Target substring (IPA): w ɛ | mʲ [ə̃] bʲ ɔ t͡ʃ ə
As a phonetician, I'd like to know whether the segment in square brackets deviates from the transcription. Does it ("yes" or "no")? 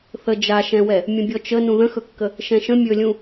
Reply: no